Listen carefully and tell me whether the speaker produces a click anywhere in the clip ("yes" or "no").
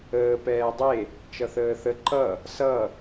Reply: yes